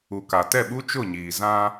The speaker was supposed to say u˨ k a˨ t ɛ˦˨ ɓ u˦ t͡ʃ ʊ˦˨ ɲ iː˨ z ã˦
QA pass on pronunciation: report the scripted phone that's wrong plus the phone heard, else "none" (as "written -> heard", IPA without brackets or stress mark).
none